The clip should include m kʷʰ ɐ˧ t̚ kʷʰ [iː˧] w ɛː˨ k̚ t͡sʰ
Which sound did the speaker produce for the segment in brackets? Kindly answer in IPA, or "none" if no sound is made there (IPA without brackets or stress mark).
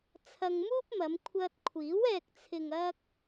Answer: iː˨˥